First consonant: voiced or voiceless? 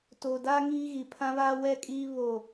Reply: voiceless